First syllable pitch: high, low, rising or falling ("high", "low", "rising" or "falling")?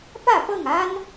falling